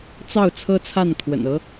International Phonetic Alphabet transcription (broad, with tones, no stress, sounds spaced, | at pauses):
t͡s ɑ˥˩ ʊ̯ t͡sʰ ɤ˥ t͡sʰ a˥˩ n kʰ w ə̰˨˩ n ɤ˧˥